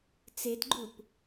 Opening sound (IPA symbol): t͡s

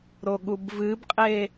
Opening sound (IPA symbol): ɾ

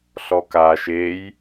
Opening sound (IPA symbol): ɬ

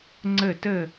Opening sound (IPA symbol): ŋ͡ǀ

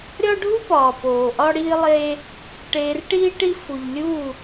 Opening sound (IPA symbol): ɾʲ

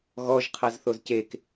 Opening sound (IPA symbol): ɣ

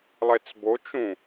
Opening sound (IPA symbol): lˠ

